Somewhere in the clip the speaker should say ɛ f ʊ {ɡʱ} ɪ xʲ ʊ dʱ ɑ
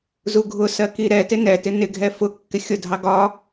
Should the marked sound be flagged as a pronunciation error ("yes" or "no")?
yes